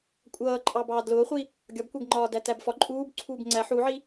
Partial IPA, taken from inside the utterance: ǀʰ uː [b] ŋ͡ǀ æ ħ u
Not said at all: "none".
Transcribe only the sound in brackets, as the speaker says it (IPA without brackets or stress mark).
b